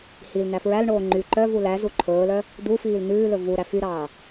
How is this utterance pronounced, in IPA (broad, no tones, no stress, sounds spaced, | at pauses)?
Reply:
h i l n̪ æ f ɹ æ l ɳ oː ŋ͡ǃ y ǃ œ v u l æ z u ǃʰ ɵː l œ | d̪ u f iː l n̪ ʉː l ɵ v u ɾ æ f y ɾ ɑː